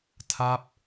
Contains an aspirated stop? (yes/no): yes